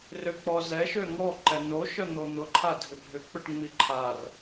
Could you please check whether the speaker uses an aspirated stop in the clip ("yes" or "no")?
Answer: yes